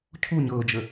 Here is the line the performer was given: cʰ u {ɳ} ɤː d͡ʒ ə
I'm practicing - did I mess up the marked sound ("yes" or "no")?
yes